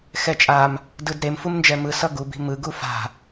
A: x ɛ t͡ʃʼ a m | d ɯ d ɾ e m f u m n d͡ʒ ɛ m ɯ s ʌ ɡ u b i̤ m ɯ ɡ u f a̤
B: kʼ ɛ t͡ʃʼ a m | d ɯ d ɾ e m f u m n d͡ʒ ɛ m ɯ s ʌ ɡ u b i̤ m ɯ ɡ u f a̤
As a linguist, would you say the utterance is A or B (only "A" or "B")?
A